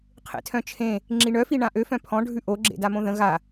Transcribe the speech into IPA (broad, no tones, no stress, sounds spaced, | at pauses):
qʰ ḛ tʰ œ̃ t͡ʃʰ ẽ | ŋ͡ǁ i ɳ œ f i ɳ ã ʔ ø f œ̃ pʰ ɔ̃ ɖʱ ʉ ʔ o ɡ͡ǁ ḛ d a m õ ð ə̃ ɣ a